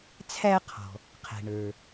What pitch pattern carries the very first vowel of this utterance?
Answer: high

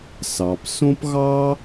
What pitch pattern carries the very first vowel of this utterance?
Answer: low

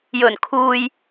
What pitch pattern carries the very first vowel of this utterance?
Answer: low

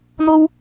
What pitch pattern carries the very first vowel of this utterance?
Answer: high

